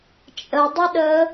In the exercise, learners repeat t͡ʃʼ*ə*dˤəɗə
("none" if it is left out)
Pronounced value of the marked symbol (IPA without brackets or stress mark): ə